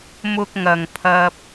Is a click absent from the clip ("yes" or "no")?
yes